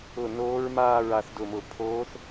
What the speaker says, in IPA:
ʊ˥˧ n oː˦˥ ɹ m aː˥˧ ɹ a˥˧ θ d ʊ˥˧ m ʊ˥˧ pʰ oː˦˥ θ

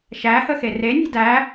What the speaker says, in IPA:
ʃ æ h ə x e r e nʲ e̤ d æ

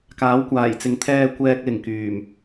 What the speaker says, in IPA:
k aː˨˥ w kʷ aː˨˩ j t͡s ɪ˨˧ ŋ t̪ʰ ɛː˧ kʷ ɛː˧ k̚ l ɪ˨˩ ŋ k yː˨˩ m

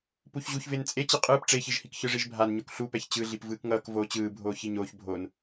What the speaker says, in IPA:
p u ç ʑ u ç v e n t͡sʼ e t͡ɕ i qʼ ɯː p ʈ͡ʂ e ç i ʒ h i k ç ɯ ʐ i ʒ bʱ a n ɲ o k ɬ u p ɛ ç t͡ɕ ɯ ɮ i p v ɯː k ŋ ʌː k v oː t͡ɕ ɯː bʱ oː ç i ɲ oː ç bʱ o n

